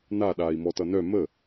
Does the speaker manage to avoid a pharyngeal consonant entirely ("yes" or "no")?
yes